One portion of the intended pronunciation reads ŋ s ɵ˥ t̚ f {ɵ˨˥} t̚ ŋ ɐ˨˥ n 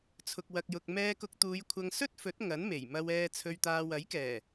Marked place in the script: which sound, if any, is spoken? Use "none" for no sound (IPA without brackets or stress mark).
ɵ˨˥